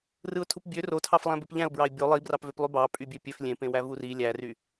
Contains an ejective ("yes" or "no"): yes